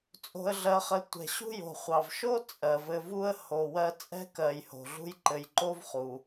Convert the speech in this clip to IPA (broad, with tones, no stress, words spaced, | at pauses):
t͡sʼo̤˨ə̯ɮɜ˨χɘ˨ tʷɛ̤˩ɕṳ˥jo̤˩ χʷɑ˩v ʃo˥ t͡sʼɜ˩vɘ˨vu˥ə̯ ho˨wɜ˦ t͡sʼɛ̤˥kɜ˨j ho̤˩ɮṳ˦jǃɘ˨jǃo˥v χu˩